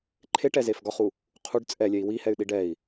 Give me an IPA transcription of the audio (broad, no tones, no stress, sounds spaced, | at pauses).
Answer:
ǃʰ e ʈ ɛ z e f ɡ ɒ χ u | qʰ u ɖ t͡sʼ ɛ lʲ ɛ i̯ w i h ɛ y̯ ɗ i ɖ ɛ i̯